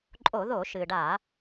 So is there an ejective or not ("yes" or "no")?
yes